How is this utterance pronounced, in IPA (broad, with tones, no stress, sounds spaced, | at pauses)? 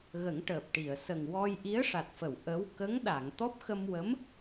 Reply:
ɣ ə˨˩˦ ŋ ʈ əː˨˩ p̚ ʈ i˨˩˨ ə̯ s ə˨˩ ŋ w ɔ˧ j ʔ i˧˥ ə̯ ʂ a˨˩ t̚ f ə˨˩˨ w ʔ ə˧˥ w k ə˧˥ ŋ ɗ a˨˩˨ ŋ t̪ ɔ˦˥ p̚ x ə˧ m w ə˧˥ m